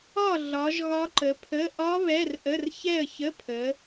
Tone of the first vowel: falling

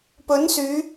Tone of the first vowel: rising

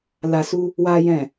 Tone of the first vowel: low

